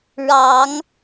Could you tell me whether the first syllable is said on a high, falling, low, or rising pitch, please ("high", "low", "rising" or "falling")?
rising